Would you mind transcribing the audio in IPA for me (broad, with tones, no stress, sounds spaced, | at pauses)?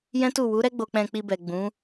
j ɛ̃˦ t u˦˨ w u˨˦ ɾ ɛ˦ ɡ͡b o˧ k͡p ɛ̃˧ k͡p i˧ b ɛ˨ ɡ͡b ũ˨˦